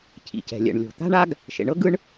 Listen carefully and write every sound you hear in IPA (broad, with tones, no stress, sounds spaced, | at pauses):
cʰ ḭ˩ c ɛ̤˩ lʲ ɛ̰˩ ɳ lʲ o̤˩ t̪ a̤˥ ɳ a˥ ɡ | ʃ ḛ˩ ɳ ɤ˥ ɡ ɯ˥ ɳ